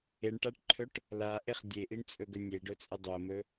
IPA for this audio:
e ɳ ʈ a ʈ ǃʰ ɵ ʈ | l a ʔ e χ dʲ e ʔ i ɳ t͡sʼ ɵ ɡ ɵ nʲ e ɖ ɵ t͡sʼ ə dˤ o m ɵ

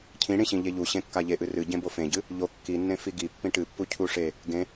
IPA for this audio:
cʰ ĩ ɽ ĩ ɕ ĩ ʎ e ʎ u ɕ ẽ kː a ʎ e ʔ ɨ r ɨ ɟ ẽ b o f ẽ ɟ ɨ | ʎ o kː i nː ẽ f i ɡ i pː ĩ ʈ ɨ pː u cʰ u ʂ e | ɡ ẽ

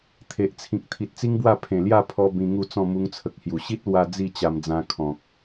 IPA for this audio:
t̪ʰ e˨ ʔ t͡sʰ ĩ˨ k̚ t̪ʰ i˨ t̚ t͡s i˦ ŋ b w a˥˧ pʰ ẽ˨˩ l j a˥˧ pʰ ɔ˧ b ĩ˧ ŋ u˥˧ t͡s ɔ̃˥˧ m u˧ ŋ t͡sʰ ə˨ k̚ h j u˨˩ ɕ i˦ t̚ l w a˧ d͡z i˥˧ t͡ɕ a˧ m d͡z ã˧ kʰ ɔ̃˨ k̚

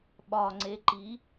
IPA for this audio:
ɓ ɒ ŋ͡ǀ e ǃ i

